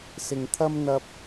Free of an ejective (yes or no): yes